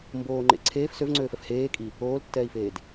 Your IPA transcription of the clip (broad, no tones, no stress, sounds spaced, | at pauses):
m b oː ŋ͡ǃ ḛ ǀʰ eː f s ø v ŋ͡ǀ øː f ɛ f h eː kʼ i | oː l tː ɛː i̯ f eː d